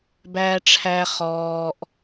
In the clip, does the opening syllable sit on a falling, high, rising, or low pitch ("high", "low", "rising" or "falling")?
low